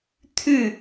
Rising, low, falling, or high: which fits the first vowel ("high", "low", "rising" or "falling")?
falling